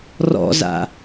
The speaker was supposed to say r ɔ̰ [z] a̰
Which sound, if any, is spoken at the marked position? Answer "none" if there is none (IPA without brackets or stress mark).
z